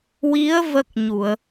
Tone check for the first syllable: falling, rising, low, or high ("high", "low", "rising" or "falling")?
rising